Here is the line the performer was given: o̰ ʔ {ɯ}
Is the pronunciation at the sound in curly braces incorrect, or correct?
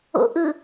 correct